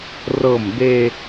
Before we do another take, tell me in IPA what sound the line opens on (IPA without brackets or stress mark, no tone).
r